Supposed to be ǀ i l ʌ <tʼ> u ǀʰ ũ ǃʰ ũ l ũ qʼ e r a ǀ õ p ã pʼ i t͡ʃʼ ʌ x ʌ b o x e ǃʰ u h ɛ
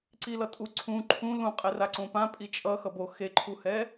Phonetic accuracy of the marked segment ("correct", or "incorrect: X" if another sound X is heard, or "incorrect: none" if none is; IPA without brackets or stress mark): correct